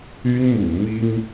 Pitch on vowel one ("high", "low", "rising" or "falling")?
high